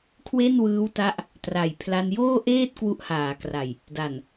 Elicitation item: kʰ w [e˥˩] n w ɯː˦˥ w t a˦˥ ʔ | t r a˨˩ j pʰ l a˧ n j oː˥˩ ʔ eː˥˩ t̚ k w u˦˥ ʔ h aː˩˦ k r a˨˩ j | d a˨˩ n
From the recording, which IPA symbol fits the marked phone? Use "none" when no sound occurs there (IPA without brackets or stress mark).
e˥˩